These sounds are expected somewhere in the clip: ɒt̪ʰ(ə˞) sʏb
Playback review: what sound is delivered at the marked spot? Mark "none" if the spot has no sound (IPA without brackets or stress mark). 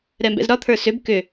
ə˞